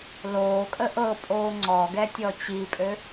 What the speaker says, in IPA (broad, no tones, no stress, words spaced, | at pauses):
loːkʼə ʔɤpʼoː ŋ͡ǀɔɡɛtʲɔ t͡ɕipʼø